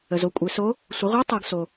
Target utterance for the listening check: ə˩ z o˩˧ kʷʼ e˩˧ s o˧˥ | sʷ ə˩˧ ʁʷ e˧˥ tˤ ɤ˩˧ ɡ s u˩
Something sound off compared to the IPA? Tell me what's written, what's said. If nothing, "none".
u˩ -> o˩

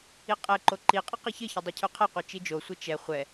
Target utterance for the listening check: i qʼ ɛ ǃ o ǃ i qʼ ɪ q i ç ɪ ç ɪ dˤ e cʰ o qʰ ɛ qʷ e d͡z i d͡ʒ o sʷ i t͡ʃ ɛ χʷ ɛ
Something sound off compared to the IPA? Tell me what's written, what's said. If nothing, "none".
d͡z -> t͡ʃ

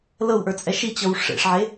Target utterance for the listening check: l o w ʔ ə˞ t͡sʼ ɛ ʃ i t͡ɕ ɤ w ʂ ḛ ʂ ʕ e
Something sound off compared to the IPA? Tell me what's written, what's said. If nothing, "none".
o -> ɤ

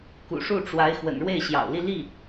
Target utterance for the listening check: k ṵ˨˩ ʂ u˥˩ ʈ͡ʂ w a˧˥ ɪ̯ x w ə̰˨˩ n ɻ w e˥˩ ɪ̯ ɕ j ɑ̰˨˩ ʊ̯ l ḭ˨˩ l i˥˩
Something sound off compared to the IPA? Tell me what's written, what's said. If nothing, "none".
ḭ˨˩ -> i˥˧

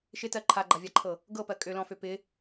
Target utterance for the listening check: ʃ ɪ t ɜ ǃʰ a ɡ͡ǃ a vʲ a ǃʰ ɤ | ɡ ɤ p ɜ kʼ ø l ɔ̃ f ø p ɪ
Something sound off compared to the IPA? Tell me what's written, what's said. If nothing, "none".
none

